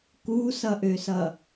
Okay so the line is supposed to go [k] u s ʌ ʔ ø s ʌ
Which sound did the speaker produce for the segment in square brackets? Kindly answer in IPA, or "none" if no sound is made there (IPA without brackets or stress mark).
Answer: k